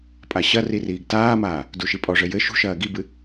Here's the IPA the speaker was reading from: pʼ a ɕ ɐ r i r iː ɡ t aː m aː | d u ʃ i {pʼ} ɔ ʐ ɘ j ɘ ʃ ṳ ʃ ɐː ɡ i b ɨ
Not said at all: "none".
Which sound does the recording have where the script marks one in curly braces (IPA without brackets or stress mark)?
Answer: pʼ